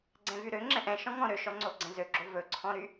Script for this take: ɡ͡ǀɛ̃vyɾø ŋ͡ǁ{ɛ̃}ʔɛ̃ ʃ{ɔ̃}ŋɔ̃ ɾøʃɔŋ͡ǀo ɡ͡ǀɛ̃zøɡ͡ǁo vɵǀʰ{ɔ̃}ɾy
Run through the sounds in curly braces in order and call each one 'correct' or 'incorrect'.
correct, correct, correct

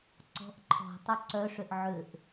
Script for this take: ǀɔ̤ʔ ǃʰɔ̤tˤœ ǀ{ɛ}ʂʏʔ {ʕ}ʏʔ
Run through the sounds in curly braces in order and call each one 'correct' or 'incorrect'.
incorrect: œ, correct

